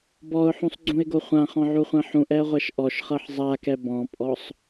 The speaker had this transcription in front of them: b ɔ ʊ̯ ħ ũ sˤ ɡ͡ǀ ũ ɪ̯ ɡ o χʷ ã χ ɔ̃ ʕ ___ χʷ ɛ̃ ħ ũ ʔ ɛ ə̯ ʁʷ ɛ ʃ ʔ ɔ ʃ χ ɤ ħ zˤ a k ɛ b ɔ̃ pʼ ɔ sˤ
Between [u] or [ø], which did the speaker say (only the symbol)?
u